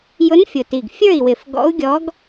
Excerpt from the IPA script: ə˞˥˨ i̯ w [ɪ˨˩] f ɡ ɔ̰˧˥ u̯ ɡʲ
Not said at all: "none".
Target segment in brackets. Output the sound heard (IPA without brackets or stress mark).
ɪ˨˩